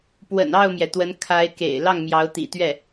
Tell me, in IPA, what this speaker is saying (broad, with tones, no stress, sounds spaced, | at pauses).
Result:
p w ə̰˨˩ n ɑ˥˩ ʊ̯ m j ɛ˩ t̪ w ə˧˥ n kʰ a˧˥ ɪ̯ k ḛ˨˩ ɪ̯ l ɑ˥˩ ŋ m j ɑ˧˥ ʊ̯ t̪ ḭ˨˩ t̪ ɥ ɛ˥˩